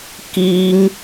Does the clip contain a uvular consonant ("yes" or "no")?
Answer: no